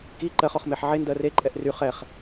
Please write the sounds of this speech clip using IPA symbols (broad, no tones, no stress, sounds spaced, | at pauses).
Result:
k i ǃ ɜ χ ɔ χ m e ħ ʕ e n d ɜ r e ǃʼ ɛ ʔ r y χ ɛ χ